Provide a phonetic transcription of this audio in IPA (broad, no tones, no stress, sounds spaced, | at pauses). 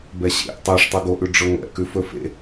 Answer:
b ɛ ɕ ḛ ʔ tˤ ɛ ʂ tˤ ɵ ɡ o ʔ ʉ ɖ͡ʐ ɵ ŋʷ ɛ̰ k ʉ f ɵ f ḛ